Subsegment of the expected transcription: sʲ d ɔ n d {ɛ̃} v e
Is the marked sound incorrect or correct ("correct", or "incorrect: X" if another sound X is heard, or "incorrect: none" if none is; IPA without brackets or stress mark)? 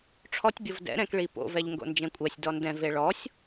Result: correct